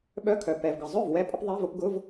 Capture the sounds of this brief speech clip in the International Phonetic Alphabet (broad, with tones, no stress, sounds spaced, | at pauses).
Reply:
ɓ œ˧˥˧ kʰ œ˩ p ɛ˩ v ɡ ə˩ zˤ œ˥˩ v w ɛ˧ pʼ ə˧ p ðˤ ɛ˧˥˧ v ʊ˧ p ɡ ʊ˧˥˧ v